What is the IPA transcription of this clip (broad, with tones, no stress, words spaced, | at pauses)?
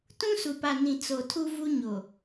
tũ˦su˨pa˨nĩ˨ t͡so˨tʰu˦ vu˦ɲo˨